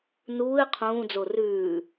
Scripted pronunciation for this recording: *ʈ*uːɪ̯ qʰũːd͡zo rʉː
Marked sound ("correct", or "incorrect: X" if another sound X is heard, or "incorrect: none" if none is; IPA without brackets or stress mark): incorrect: n